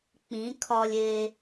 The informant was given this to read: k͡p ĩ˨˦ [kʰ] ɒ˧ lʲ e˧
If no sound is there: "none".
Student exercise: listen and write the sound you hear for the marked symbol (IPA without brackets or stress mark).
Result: kʰ